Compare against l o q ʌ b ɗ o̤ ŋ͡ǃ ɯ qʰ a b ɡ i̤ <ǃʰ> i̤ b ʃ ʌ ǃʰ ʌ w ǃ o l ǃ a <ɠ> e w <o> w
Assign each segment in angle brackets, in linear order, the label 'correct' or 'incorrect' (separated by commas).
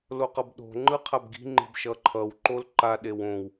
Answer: incorrect, incorrect, incorrect